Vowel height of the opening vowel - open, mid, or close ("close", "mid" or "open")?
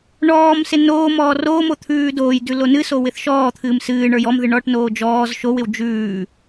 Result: mid